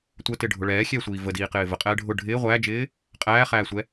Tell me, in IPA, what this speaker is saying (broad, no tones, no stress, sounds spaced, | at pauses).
tʷ ə t ɪ ɖʱ ʊ ɭ ɛː xʲ ɛː sʷ iː v ə d iː q ɪː v ə qʼ ɛː ɖʱ ʊ ɖʱ ɪː ʁʷ æː d͡ʒ ɪː | qʼ æː χ æː sʷ ɛ